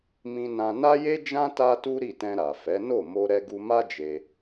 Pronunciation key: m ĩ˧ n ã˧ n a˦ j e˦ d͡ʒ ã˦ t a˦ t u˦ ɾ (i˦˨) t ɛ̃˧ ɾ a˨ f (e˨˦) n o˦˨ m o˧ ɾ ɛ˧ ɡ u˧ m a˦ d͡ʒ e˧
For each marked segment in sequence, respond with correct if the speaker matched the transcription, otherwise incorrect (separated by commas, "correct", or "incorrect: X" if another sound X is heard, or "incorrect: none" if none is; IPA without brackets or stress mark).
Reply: correct, incorrect: ɛ˨˦